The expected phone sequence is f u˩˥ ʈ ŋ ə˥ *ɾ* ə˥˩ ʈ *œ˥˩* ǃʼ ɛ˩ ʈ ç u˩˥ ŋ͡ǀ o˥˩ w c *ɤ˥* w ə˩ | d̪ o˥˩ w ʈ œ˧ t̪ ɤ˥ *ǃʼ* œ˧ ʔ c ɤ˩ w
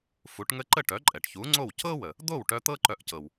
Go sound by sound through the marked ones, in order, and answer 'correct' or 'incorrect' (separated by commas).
incorrect, incorrect, correct, incorrect